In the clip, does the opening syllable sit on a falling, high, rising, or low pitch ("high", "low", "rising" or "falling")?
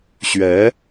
rising